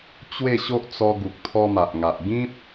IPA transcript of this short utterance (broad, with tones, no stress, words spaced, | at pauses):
t͡ɕwe˥˧ɕo˦ʔt͡sɔ˧ ɡu˨k̚t̪ʰɔ˧ma˨ʔ ŋa˨ʔ ɡĩ˦p̚